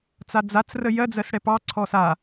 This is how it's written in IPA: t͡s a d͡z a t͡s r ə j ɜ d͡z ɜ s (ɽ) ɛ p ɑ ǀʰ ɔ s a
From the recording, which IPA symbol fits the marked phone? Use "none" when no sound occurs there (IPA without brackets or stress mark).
ɽ